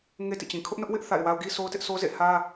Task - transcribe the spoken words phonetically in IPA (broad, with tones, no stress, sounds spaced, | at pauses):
ŋ e˦ t ḭ˦˨ t͡ɕ ĩ˨ kʰ ʊ˦ ʔ n ʊ˦ ʔ w ɪ˦ ʔ θ a̰˦˨ ɪ̯ w a˦ ʊ̯ ɡ i˦ sʰ o˦ ʊ̯ t ɪ˦ ʔ sʰ o˦ z ḛ˦˨ h ä˦